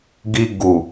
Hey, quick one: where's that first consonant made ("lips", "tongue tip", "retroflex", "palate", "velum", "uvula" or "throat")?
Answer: velum